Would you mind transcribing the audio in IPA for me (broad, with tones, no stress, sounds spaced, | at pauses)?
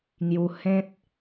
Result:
ŋ j u˧ h ẽ˦ t̚